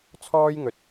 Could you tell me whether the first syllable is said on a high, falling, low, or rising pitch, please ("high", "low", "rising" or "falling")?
high